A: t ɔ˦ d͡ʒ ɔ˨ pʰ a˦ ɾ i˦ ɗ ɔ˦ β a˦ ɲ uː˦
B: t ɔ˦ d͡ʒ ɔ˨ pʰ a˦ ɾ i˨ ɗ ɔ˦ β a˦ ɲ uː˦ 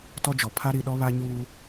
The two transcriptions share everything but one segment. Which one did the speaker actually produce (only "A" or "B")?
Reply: B